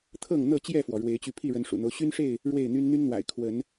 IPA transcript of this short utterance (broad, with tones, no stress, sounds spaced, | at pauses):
t̪ʰ ɤ˥˨ ŋ n̪ ɤ˥˨ t͡ɕ j ɛ˥˨ f w ɔ˩ ɻ w e˨˦ ɪ̯ t͡ɕ y˧ pʰ i˥˨ ɻ ə˨˦ n ʂ ṵ˨˩ n̪ o˦ ʊ̯ ɕ y˦ n ʂ e˥˨ ɪ̯ | ɻ w e˥˨ ɪ̯ n̪ y˦ n n̪ y˦ n n̪ w a̰˨˩ ɪ̯ kʰ w ə˨˦ n